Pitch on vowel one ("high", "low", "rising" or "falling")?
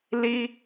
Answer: high